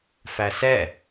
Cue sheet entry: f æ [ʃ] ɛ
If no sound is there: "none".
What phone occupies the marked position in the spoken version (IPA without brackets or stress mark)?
s